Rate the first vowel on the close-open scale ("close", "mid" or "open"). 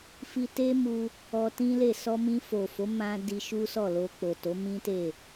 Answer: close